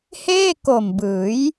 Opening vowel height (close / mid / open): mid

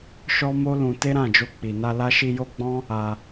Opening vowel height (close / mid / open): mid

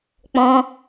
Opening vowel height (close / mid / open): mid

